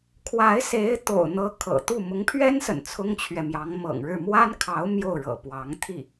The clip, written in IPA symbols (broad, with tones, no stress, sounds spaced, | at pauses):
kʰ w a˧˥ ɪ̯ s e˧˥ ɪ̯ t̪ o̰˨˩ ʊ̯ n̪ ɤ˧˥ kʰ ɤ̰˨˩ t̪ u˥˩ m ʊ˧˥ ŋ pʰ ɥ ɛ˥ n s ə̰˨˩ n t͡sʰ ʊ˥ ŋ t͡ɕʰ ɥ ɛ˨ m j ɑ˧˥ ŋ m ɤ̰˨˩ ŋ ɻ ɻ̩˥˩ m w a˥ n kʰ ɑ˧˥ ʊ̯ m j o˥˩ ʊ̯ ɻ ɤ̰˨˩ p w ɑ˧˥ ŋ t̪ʰ i˥˩